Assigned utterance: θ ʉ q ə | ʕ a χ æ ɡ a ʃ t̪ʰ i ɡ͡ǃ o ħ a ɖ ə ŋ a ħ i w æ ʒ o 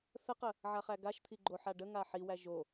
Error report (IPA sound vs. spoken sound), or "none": ʉ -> ə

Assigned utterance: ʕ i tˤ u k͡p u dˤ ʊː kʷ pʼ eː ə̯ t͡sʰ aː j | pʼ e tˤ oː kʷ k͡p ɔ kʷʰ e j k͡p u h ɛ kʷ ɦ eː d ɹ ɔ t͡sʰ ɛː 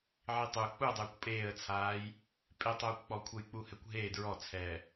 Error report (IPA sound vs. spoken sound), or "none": none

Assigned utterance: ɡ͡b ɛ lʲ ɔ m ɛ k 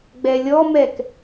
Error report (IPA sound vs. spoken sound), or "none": none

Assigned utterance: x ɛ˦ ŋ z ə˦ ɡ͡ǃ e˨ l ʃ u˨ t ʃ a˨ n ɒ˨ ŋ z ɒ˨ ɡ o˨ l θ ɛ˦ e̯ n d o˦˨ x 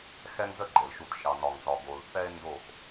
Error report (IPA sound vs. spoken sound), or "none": a˨ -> ɑ˨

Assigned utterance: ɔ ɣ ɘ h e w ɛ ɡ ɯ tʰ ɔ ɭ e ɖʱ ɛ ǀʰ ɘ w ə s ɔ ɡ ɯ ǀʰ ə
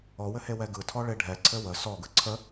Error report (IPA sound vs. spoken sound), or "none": ɣ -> w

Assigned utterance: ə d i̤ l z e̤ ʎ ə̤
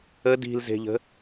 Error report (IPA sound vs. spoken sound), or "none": none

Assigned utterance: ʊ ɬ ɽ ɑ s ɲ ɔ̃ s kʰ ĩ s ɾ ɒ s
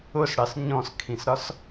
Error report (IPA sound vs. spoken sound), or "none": ɬ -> s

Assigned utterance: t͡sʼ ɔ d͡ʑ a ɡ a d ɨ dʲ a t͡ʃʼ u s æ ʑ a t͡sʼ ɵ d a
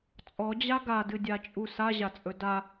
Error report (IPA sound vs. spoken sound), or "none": æ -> a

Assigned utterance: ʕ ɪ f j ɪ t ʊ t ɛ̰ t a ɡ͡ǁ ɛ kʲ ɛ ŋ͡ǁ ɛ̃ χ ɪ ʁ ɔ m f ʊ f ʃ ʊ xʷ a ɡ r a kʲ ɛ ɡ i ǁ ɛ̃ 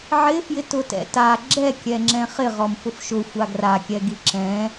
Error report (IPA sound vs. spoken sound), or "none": none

